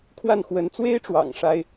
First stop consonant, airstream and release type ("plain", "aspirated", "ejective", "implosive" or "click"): aspirated